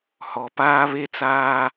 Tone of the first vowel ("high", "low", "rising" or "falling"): low